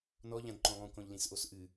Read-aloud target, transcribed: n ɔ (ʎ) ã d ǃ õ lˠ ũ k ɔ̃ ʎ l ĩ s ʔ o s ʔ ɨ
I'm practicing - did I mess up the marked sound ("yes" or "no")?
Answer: no